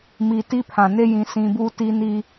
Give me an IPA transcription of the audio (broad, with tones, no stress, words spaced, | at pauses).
mi˨ti˦pʰã˨ ne˦jĩ˨ sĩ˨bu˦ ti˦ni˦